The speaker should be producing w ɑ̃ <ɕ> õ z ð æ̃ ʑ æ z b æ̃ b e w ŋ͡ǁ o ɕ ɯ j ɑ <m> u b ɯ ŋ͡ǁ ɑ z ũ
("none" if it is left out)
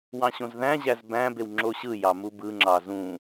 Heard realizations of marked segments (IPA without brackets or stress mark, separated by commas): ɕ, m